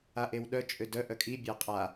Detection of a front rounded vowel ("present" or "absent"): present